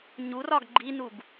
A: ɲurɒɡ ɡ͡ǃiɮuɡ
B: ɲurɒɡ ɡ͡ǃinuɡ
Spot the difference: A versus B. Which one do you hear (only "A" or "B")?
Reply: B